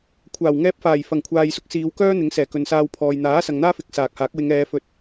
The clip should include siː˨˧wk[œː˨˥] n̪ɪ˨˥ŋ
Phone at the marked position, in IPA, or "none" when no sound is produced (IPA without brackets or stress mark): œː˥